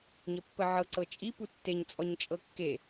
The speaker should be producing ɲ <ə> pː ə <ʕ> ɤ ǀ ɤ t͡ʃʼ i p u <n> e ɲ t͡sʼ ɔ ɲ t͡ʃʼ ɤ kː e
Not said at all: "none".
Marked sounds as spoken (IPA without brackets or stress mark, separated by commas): ə, ʕ, tː